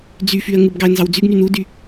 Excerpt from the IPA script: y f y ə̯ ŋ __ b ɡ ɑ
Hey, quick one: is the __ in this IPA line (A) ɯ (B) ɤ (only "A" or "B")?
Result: A